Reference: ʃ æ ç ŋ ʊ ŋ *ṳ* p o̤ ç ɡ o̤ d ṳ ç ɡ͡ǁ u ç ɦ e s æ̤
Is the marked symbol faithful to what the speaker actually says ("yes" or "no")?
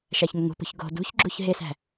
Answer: yes